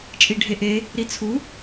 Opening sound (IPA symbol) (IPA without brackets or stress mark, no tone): t͡ʃʼ